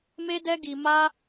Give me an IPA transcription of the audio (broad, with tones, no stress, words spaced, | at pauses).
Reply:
me˦dɛ˦ɡi˧ ma˦